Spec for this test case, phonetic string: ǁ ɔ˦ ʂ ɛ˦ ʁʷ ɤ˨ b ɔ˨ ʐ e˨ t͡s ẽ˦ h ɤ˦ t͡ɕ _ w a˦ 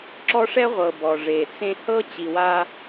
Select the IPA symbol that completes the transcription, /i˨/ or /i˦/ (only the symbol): i˨